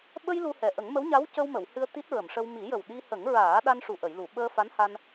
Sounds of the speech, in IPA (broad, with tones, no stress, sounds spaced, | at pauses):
ɓ ə˧ j l u˧ h ɛ˨˩ ʔ ə˨˩˦ ŋ m ə˧˥ w ɲ a˧˥ w c ə˧ w m ə˨˩˨ w h ɨ˧ ə̯ t̪ i˦˥ t̚ ɹ ə˨˩˨ m ʂ ə˧ w m i˨˩˦ j ə˨˩ w ɗ i˧ h ə˨˩˦ ŋ ɹ aː˨˩˦ ɗ a˧ n ʂ u˨˩ ʔ ə˨˩˨ j l u˨˩˨ ɓ əː˧ f a˧˥ n h a˧ n